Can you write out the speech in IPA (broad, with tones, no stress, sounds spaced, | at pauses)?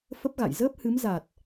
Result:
f ə˦˥ p̚ ɣ a̰˧˨ j z əː˦˥ p̚ h ɨ˨˦ m z a˨˩ t̚